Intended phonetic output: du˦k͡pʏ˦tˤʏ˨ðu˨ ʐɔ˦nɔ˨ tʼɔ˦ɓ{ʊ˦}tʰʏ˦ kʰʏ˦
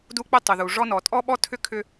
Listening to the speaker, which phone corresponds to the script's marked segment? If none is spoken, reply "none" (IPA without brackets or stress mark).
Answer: ɔ˦